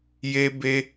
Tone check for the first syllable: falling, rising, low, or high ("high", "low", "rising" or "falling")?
high